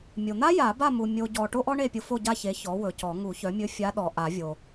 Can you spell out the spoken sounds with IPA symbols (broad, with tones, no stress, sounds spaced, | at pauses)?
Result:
mʲ o˨ n̪ a˥ j a˨˩˦ b a˥˨ m u˨ mʲ o˨ ɟ ɔ˨ ʈ o˥ ʔ ɔ˥ ɳ e˥˨ pʲ ʊ˧˥ f o˥˨ ɟ a˥˨ ç e˩˥ ç ɔ˩˥ w ɵ˨ c ɔ˨˩˦ ŋ u˨˩˦ ç œ˩˥ mʲ ɵ˧˥ fʲ a˧˥ ɗ ɔ˨ ʔ a˨˩˦ vʲ o˨